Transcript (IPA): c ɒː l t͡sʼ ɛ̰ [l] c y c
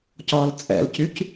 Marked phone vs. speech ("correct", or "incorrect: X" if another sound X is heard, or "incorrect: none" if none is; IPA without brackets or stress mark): correct